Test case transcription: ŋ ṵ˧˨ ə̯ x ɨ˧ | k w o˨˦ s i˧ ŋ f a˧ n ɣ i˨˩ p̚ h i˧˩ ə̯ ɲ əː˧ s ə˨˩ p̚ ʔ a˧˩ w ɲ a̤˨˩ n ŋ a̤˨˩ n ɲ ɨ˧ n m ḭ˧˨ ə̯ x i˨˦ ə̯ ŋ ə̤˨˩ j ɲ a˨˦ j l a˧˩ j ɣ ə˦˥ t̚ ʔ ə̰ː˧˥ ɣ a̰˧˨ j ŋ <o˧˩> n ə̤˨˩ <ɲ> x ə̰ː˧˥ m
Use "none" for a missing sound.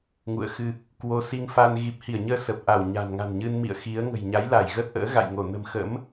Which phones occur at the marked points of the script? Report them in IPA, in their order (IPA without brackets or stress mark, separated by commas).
o˧˩, m